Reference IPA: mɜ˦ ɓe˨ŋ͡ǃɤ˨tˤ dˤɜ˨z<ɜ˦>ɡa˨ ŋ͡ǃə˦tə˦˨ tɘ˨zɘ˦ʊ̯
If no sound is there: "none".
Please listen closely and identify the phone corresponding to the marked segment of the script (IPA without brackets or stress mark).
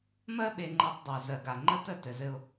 ɜ˨